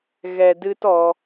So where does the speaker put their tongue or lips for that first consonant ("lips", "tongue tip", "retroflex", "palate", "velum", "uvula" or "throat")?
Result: velum